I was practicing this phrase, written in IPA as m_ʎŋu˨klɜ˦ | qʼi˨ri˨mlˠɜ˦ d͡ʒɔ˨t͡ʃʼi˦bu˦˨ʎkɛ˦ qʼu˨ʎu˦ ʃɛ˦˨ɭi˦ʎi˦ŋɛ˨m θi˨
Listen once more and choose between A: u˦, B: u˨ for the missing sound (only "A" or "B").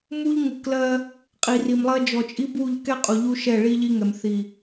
A